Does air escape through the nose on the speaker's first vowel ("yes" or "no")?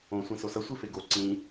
yes